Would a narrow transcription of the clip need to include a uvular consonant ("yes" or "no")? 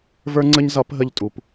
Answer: no